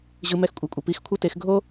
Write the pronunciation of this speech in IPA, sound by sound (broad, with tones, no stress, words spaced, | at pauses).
ʑɯ˧ mɛ˧xkʷʼɛ˨kʷʼʌ˨ pi˨˦xkʷʰʌ˦te˧x ɡʱo˦